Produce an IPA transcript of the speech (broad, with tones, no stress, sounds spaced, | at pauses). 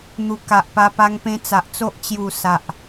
n̪ u˨˩ k a˨ ʔ p a˧ p a˧ ŋ p ẽ˧ t͡s a˨ ʔ t͡s o˦ ʔ t͡ɕ j u˨˩ s a˨ ʔ